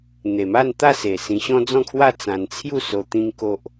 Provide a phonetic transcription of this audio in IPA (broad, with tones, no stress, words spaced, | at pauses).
n̪e˨˩ma˥˧nt̪a˥˧se˨˩ sĩ˧ ɕɔ̃˦d͡zɔ̃˥˧kʰwa˥˧ t͡sã˧nt͡sʰju˥˧so˧ t̪ĩ˦ŋko˦ʔ